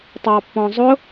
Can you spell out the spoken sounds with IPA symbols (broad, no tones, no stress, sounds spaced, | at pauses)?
tˤ ɑ pː ɔ̃ zˤ ʊ